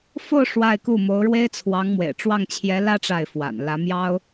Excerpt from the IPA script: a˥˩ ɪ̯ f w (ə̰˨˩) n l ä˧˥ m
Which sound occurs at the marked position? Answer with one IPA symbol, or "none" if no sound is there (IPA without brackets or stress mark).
a̰˨˩